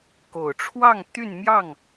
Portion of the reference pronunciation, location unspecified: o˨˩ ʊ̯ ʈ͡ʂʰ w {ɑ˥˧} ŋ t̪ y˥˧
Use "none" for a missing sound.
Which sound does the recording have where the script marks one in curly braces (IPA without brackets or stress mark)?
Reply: ɑ˥˧